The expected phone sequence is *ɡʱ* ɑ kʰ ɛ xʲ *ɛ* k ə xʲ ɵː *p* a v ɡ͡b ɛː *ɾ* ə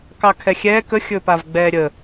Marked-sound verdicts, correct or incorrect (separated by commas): incorrect, incorrect, correct, incorrect